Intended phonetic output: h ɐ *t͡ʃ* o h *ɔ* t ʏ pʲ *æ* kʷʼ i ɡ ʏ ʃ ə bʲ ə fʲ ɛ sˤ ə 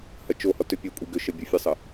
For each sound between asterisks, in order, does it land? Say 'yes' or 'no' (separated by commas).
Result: yes, yes, no